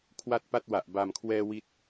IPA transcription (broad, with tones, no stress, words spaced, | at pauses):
kʰwa˥˩t̚pa˥˩t̚wa˨˩ʔ ba˨˩mkʰwɛː˧ wi˥˩t̚